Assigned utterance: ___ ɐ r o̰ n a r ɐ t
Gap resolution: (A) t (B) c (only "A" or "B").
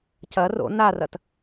B